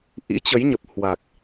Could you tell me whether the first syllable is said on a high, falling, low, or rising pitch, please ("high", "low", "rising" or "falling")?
rising